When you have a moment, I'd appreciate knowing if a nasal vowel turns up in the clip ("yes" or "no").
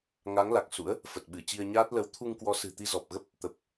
no